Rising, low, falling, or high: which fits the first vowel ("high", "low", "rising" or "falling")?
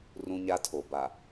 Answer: high